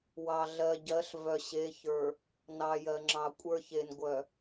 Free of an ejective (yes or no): no